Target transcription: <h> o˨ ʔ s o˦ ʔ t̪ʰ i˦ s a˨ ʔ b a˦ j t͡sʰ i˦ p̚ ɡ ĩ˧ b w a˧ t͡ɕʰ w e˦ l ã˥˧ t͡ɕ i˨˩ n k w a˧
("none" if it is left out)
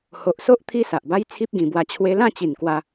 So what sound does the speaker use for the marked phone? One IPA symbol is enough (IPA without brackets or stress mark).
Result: h